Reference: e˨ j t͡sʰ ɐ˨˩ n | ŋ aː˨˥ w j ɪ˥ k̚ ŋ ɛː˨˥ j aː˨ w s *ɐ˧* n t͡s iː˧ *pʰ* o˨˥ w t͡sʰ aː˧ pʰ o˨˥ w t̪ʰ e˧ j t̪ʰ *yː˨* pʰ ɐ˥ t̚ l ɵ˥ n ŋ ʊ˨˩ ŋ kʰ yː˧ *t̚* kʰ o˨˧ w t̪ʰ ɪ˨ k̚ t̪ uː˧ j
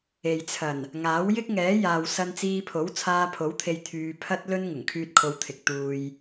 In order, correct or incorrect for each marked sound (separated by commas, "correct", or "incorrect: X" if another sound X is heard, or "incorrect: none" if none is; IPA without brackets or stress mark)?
correct, correct, incorrect: yː˧, correct